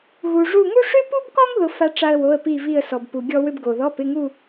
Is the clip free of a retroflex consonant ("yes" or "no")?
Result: no